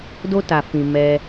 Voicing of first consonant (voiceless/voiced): voiced